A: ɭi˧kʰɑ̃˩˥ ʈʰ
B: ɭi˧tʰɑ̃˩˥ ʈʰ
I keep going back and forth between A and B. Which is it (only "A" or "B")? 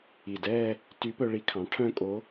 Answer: A